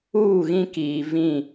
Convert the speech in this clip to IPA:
uː˦˨ɣĩ˦kiː˨ vĩ˦˨

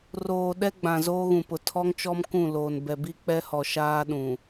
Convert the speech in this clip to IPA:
roː˨ ɗɛ˦ɡ͡bã˨ zoː˦ɣũ˨pʊ˨ tʰɔ˦ŋt͡ʃɔ˦m kũ˦˨loː˨n bɛ˨bi˦k͡pɛ˦hɔ˨ ʃaː˦ɗũ˨

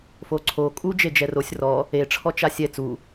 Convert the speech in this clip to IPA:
foǀʰo kʼu d͡ʒed͡ʒɛrosʲ rɔ | e ʈ͡ʂʰɔt͡ʃasʲɛ t͡su

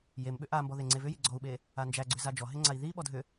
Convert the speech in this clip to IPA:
jemɓʏ ʔambɔ ðeŋ͡ǀevʏji ɡ͡ǀɔu̯ɓe | and͡ʒæɡ͡ǀʏ zad͡ʒɔɦe ŋ͡ǀai̯ðiɓɔ dʱʏ

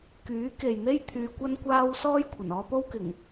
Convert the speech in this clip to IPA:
kyː˨˥ke˨jn̪e˥j t̪ʰyː˧kʷɐ˥nkʷaː˥w sɔː˥jkʷʰɐ˨˩nɔː˧po˥w kɪ˨˩ŋ

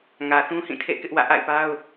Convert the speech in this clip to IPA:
ŋä˨θũ˦hĩ˦˨tʰḛ˦˨ kɪ˦ʔwä̰˦˨ ʔa̰˦˨ɪ̯pa˦ʊ̯

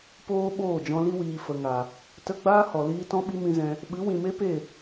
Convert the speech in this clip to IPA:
poː˦ ɓoː˦˨d͡ʒɔ̃˧li˦wiː˨ fə˨ŋa˨ | tə˧ɡ͡baː˦ hɔ˨liː˦ tɔ̃˦ɓi˦mĩ˧zɛ̃˧ | ɓɨ˨˦ wĩ˨me˦pe˦˨

